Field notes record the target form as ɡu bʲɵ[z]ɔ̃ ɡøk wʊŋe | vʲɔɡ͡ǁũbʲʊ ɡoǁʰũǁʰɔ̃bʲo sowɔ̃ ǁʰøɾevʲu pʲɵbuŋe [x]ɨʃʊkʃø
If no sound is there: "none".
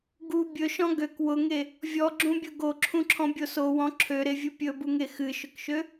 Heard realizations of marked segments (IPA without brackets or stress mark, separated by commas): ʃ, x